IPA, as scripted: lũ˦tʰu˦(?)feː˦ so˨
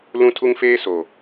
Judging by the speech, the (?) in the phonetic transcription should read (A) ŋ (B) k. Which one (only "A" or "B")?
A